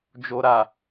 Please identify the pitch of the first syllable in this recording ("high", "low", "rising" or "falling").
low